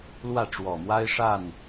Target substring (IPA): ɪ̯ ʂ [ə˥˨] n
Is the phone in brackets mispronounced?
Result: yes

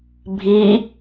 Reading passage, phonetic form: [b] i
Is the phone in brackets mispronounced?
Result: yes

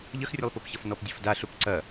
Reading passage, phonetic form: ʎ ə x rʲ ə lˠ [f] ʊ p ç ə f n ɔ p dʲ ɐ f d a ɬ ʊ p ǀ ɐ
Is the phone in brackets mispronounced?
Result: yes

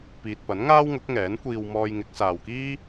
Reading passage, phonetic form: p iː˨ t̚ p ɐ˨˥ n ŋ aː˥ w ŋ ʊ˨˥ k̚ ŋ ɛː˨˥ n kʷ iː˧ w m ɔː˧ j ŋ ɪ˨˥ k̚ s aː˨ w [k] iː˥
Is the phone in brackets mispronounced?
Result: no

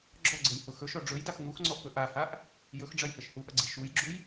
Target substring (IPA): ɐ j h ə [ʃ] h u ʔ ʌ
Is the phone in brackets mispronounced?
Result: no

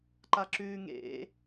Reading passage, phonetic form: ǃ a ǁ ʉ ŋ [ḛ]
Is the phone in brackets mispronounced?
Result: no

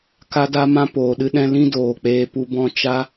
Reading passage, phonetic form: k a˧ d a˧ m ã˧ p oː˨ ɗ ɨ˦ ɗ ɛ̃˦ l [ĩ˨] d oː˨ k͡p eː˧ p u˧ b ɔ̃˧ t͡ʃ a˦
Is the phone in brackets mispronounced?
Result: yes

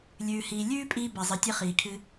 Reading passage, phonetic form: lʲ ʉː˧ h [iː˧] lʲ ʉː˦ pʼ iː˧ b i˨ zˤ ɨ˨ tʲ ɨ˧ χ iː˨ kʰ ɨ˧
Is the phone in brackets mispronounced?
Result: no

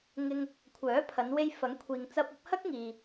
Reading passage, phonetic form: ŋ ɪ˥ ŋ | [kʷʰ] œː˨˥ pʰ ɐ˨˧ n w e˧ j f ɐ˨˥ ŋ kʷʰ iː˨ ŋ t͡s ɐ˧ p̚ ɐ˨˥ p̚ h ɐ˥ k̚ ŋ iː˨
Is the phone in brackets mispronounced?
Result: no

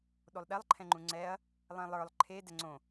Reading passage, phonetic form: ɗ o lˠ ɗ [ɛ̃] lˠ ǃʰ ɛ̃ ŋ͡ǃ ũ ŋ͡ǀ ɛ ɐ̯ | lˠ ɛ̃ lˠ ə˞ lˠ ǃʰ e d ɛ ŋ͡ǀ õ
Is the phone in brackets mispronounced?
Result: yes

